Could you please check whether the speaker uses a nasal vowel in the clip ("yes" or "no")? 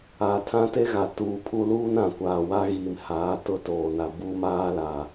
yes